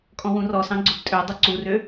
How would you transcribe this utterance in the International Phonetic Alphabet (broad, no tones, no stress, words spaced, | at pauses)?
kʼɔ̃wũrɔsɑ̃ ɡ͡ǀʊbtʼødˤʊ ǀurø